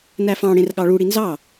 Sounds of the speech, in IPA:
n æ f ɑ̃ ɽ ẽ r ɠ ɑ ɭ u ɽ i n z ɑ

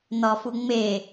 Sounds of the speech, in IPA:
n ɒ f u ŋ͡m e

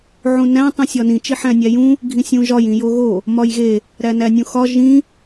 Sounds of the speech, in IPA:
ʕ ũ n æ̃ tˤ ũ sʲ ɒ n ĩ t͡ʃ i ħ æ̃ nʲ æ j ũ | ɡʱ ĩ sʲ ũ ʒ ɒ j ĩ j o ɣ o | m ɒ j ɣ e | ɾ æ n æ nʲ ũ x ɒ ʒ ĩ

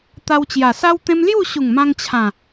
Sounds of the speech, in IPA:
t̪ a˧ w t͡ɕ j a˨˩ s a˦ w t̪ ẽ˦ m l j u˥˧ ɕ u˨˩ ŋ m ã˧ ŋ t͡ɕʰ ã˨˩

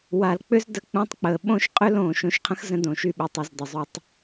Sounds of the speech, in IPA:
w a˨ l k͡p ʏ˦ z d ə˧ k͡p ũ˧ tˤ k͡p əː˨ ɓ õ˦ ʃ qʼ ʏ˦ l õː˨ ʃ õ˧ ʃ qʰ ə̃˦ x z ə̃˦ d õ˨ ʃ y˦˨ ɓ ʏ˨˦ tˤ u˨ z d ɘ˨ zˤ ɵ˧ tˤ

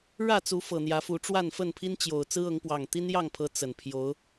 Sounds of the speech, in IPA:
ɻ ä˥˨ t͡s u˨˦ f ɤ˨˩ n̪ j ä˨˦ f u˨˦ ʈ͡ʂ w a˥˨ n f ə˥˨ n pʰ i˦ n t͡ɕ j o˨˩ ʊ̯ t͡s ɹ̩˦ ɤ˨˦ ŋ p w ɑ˨˩ ŋ t̪ i˦ n j ɑ˥˨ ŋ pʰ ɤ˨˦ t͡s ə˨˩ n pʰ j o˨˦ ʊ̯

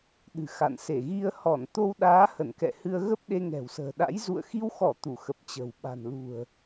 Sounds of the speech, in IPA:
ɗ ɨ̤˨˩ x a̰˧˨ n s e˧˩ ɣ i˧ ə̯ h ɔ˧˩ n t̪ o˧ w ɗ aː˨˦ h ə˧˩ n k ɛ̰˧˨ h ɨ˧ ə̯ ɣ ə˦˥ p̚ ɗ e˧ ŋ ɛ̤˨˩ w s ə̤ː˨˩ ɗ a̰˧˥ j z ṵ˧˨ ə̯ x i˧ w x ɔ˧˩ t̪ u˧˩ x ə˨˩ p̚ t͡ɕ ə̤˨˩ w ɓ a̤˨˩ n l ṳ˨˩ ə̯

